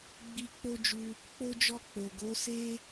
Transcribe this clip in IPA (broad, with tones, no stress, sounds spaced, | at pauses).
ɡ͡b i˧ k͡p o˦ d͡ʒ u˧ | k͡p o˦ d͡ʒ ɔ˦˨ k͡p o˨ ɡ o˨˦ s e˦